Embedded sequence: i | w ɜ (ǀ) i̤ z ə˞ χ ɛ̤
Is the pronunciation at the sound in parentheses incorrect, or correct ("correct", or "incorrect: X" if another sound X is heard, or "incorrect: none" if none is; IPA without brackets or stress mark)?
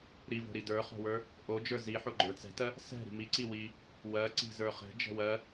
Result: correct